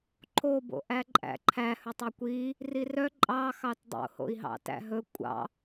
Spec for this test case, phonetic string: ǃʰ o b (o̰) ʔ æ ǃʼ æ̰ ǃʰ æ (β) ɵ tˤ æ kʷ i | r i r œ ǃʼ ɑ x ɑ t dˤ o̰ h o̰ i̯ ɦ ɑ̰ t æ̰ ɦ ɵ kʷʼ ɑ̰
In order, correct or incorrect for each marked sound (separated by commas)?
correct, incorrect